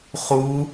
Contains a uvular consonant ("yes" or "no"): yes